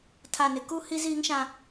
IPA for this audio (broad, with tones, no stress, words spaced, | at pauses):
tʰa˨nɪ˨ku˦ hi˦ziː˦ŋʃã˦